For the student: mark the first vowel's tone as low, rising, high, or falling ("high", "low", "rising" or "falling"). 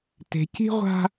low